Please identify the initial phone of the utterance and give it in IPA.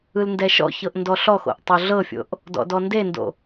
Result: ɯ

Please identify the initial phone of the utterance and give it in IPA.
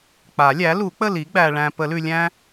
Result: k͡p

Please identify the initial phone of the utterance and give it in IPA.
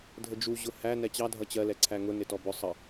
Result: dʱ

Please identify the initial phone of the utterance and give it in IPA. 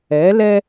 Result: ɛ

